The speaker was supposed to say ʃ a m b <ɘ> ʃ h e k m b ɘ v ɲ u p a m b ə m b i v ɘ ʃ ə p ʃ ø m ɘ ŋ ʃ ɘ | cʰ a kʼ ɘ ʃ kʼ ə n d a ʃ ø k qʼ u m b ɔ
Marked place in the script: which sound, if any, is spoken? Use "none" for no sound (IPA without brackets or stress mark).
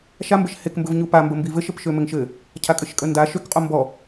ɘ